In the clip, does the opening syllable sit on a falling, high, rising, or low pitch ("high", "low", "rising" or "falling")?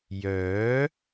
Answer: rising